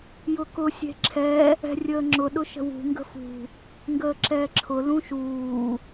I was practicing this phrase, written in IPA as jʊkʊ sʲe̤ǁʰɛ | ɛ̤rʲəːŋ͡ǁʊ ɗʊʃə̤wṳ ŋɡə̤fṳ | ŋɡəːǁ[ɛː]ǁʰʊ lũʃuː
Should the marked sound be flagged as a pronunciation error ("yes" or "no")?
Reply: no